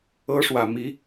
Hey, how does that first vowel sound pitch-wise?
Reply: high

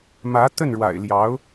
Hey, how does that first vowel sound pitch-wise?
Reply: rising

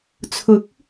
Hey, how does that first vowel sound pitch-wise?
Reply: rising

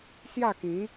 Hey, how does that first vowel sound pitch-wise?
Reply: falling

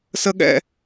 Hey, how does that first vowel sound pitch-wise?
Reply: high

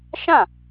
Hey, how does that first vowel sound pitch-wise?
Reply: falling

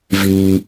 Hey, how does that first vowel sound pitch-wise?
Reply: high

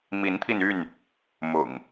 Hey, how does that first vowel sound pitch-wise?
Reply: rising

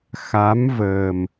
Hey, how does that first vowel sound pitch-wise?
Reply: rising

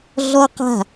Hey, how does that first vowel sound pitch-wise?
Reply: high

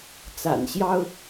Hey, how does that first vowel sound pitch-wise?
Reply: low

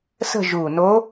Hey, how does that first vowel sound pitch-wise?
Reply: falling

